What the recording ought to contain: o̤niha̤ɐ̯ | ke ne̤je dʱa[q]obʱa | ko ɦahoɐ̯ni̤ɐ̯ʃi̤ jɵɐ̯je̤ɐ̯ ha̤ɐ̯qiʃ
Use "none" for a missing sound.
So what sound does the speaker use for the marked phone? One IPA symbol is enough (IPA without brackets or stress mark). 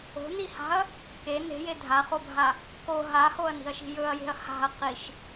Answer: χ